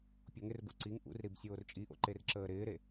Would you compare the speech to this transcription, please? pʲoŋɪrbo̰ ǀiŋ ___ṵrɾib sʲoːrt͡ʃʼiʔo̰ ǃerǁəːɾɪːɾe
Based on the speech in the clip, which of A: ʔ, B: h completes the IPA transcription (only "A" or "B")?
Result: A